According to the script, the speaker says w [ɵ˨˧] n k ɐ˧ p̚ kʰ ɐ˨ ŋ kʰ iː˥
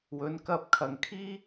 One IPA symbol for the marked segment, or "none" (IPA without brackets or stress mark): ɵ˨˧